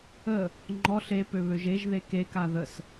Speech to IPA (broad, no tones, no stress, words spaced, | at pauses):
ə | ŋ͡ǃɔɬ epøβøʒ eʒðe keka ðəs